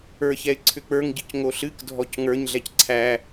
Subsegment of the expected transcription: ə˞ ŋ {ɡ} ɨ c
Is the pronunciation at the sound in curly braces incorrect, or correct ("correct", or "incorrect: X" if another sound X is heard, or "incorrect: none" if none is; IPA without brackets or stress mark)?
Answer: incorrect: ɟ